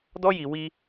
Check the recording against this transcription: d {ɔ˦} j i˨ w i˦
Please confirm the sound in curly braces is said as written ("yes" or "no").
yes